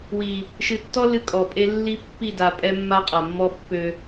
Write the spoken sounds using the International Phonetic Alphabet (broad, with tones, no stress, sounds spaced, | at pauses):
w i˨ | ʃ ɨ˨ tː ɔ˦ l ɨ˦ kʼ ɔ˨ pʼ e˦ lː i˦ pː i˦˨ d a˨ pʼ ɛ˦ mː a˦ qʼ a˨ mː ɔ˦ pː ø˦